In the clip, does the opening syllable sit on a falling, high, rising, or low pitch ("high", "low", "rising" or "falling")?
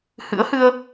rising